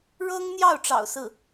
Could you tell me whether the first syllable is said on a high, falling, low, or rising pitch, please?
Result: high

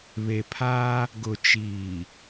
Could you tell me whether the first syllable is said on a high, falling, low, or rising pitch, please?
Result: low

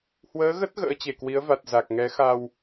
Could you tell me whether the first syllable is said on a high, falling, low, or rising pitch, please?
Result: rising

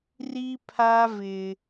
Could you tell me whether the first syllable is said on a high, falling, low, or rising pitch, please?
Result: high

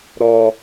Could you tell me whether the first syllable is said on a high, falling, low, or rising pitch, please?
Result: low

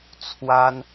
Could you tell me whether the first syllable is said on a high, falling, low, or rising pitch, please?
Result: high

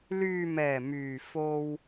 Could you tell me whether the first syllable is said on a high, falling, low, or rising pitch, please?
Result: low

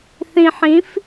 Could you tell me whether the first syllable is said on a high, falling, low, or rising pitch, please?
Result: low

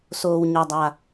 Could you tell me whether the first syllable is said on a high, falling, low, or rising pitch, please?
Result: low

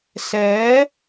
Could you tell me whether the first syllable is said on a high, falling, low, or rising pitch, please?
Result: rising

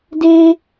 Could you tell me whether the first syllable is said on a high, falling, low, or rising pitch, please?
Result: high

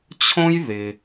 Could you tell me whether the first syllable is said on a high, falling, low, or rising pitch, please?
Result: high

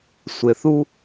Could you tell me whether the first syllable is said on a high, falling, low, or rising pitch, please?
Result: low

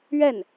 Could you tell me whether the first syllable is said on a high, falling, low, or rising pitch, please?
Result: falling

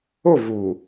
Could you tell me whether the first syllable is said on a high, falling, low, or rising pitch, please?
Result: falling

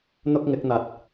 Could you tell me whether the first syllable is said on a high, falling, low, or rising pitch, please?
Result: high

